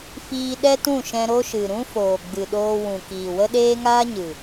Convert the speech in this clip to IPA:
fiː˧ɗɛ˦tũ˦˨ ʃɛ̃˧ɾo˦ʃɨ˨ ɾũ˦ foː˨ɡ͡bɨ˨ɗoː˧ wũ˨kiː˨ wə˦ɗeː˦ŋaː˦ɲɨ˨

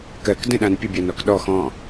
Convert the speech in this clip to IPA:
kɜk də̃ɗãn pʲəbʲanɔk ɗɔ xɔ̃

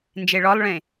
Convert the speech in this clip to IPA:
nd͡ʒeɭɔlˠɭẽ

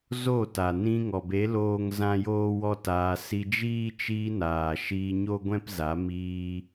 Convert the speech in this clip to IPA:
zo˦˨t a˨nĩ˧ŋɔ˨be˨˦ loː˦ŋzã˦ joː˦wɔ˦taː˧ si˧d͡ʒiː˦ t͡ʃiː˧ naː˨ʃiː˧ɲo˦ ɡʷɛ̃˦pza˨˦ miː˧

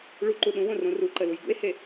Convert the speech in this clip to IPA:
ɭuǃu ɗũwõ rõruǃə lujɡṵe̯he

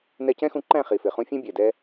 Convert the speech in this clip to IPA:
nɛ˧ cɛ̃˦xũ˧ǃæ̃˦˨ χi˨fɪ˨ χũ˧fʲɛ̃˦ bʲɛ˨dɛ˦

